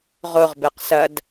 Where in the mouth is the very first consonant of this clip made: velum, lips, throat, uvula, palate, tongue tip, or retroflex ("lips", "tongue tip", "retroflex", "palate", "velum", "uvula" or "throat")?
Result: uvula